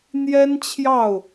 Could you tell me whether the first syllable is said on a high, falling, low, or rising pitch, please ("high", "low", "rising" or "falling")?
high